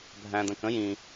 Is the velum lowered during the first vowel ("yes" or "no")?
yes